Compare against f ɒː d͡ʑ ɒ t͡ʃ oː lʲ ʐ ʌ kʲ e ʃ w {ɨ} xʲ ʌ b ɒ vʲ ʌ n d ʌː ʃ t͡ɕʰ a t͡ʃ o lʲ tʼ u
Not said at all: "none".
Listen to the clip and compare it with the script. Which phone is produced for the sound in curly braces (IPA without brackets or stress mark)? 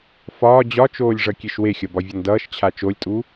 e